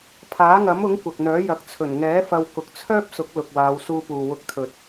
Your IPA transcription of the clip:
pʰ aː˨˥ ŋ ɐ˨˥ m ʊ˨˥ ŋ kʷ ɐ˨ k̚ n̪ œː˨˥ j ɐ˨˥ k̚ t͡sʰ ɵ˨˩ n ŋ ɛː˨˥ f ɐ˧ w k ʊ˨ k̚ t͡sʰ œː˥ p̚ s ʊ˨˥ k̚ l ʊ˨ k̚ w aː˨˧ w s uː˧ p uː˨ w ʊ˨˥ k̚ t̪ʰ ɵ˨ t̚

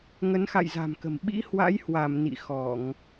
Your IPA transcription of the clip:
ŋ ə˨˦ n x a̰˧˨ j z a̤˨˩ m k ə̤˨˩ m ɓ ḭ˧˥ h w a̰˧˥ j h w a˧˩ m n ḭ˧˨ x ɔ˧˩˨ ŋ

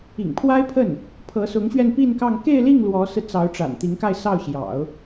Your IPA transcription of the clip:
ḭ˨˩ ŋ pʰ w a˥ ɪ̯ pʰ ə˥˩ n | pʰ ɤ˧˥ s ʊ˧˥ ŋ ɕ ɥ ɛ˥˧ n p i˥˧ n k ɑ˥˧ ŋ k e˥˧ ɪ̯ l i˥˩ ŋ l w ɔ˧˥ s ɹ̩˧ t͡s ɑ˧˥ ʊ̯ ʈ͡ʂ a̰˨˩ n t̪ i˧˥ ŋ k a˥˧ ɪ̯ s ɑ˥˩ ʊ̯ ɕ j ɑ̰˨˩˦ ʊ̯

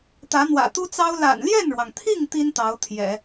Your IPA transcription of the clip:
t̪ ä˧˥ n̪ w ä̰˨˩ t̪ u˥ t͡s ɑ˥ ʊ̯ l a̰˨˩ n l j ɛ˥˩ n ɻ w ɑ˩ ŋ t̪ʰ i˥˩ ŋ t̪ i˥ n t̪ ɑ˧˥ ʊ̯ t̪ʰ j ɛ̰˨˩˦

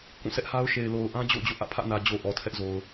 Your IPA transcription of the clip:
k ũ˦˨ sʰ ɛ˦ ʔ h a˦ ʊ̯ ʃ e˨ ɪ̯ l o˨ ʊ̯ ʔ ã˦ d͡ʑ o̰˦˨ ʊ̯ d͡ʑ o̰˦˨ ʔ ä̰˦˨ pʰ ä̰˦˨ n ä˨ d͡ʑ o˨ ʔ ɔ˨ tʰ ɛ˦ ʔ z o˨ ʊ̯

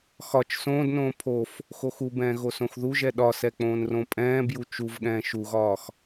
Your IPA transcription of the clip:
x ɒ t͡ʃ s õː d n õː pʰ o f | x o x u b ɛ̃ː ɣ o s õ x ð u ʒ ɛ ɗ ɒ s ɛ k͡p õː n r õ pʼ ɛ̃ː b j u t͡ʃ u v ɠ ɛ̃ː ʃ u ɣ ɒː x

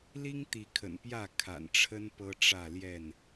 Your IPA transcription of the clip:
l i˦ ŋ t̪ i˨˦ kʰ ə̰˨˩ n p j ä˥˨ kʰ a̰˨˩ n ʈ͡ʂʰ ə˦ n p ɤ˦ ʈ͡ʂ ä˥˨ l j ɛ˥˨ n

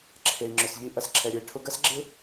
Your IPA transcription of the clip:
ǁʰ e˨ i̯ ŋ͡ǁ ʏ˨ s ʎ i˧ ʔ ɐ˨ s ǁʰ ɛ˨ ɾʲ œ˨ i̯ ʈʰ ʊ˧ ɡ ɐ˦ s ɡ͡ǁ ɪ˦

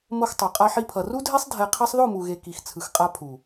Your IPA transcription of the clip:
m o˧ x tˤ o˨ qʼ a˧ ħ i˧ pʰ ʌ˨ r u˦ dʱ e˦ sˤ dʱ ɛ˧ qʰ ɛ˦ sˤ ð o˦˨ m u˨ ɣ e˨ k i˨ x t͡sʰ ɯ˨ x qʼ a˧ pʰ u˨

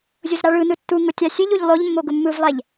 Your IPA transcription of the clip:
zʲ ʊ z ɾ a ɭ ɯ n ɯ tː u ŋ ʊ tʲ a sʲ ɨ ʎ u ʎ lˠ o ʎ mː o ɡ ʊ mː ɯ v lˠ ɛ ʎ

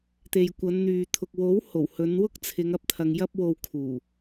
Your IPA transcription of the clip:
t̪ e˨ j kʷ ɐ˨˧ n n̪ yː˨ t̪ʰ ʊ˨ k̚ w o˨˥ w h o˨˩ w h ɵ˨˧ n w ʊ˥ k̚ t͡sʰ ɪ˨˧ ŋ ɐ˧ p̚ t̪ʰ ɐ˨ ŋ j ɐ˧ p̚ w o˨ w kʰ uː˨˩

